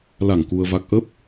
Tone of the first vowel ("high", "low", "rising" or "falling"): low